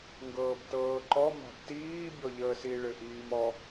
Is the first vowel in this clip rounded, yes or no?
no